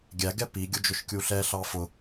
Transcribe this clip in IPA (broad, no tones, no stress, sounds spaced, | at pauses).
ɡʲ æ ɡ ɛ p i ɡʲ ʊ d͡ʒ ʊ ʃ kʲ u ɬ ɛ ɬ ɑ f ʊ